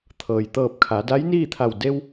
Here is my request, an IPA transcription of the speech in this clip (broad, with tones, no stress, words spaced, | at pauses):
t̪ʰɤː˩jt̪ɤː˧˩p̚kʰa˩˧ da˧˥jniː˥˨t̪ʰa˧˩w de˧w